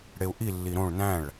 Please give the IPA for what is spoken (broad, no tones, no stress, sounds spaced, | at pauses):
ɽ e u̯ ʔ i lː i ɾ õ ɭ n æ̃ ɭ